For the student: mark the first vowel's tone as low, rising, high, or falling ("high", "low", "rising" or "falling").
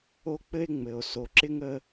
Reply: high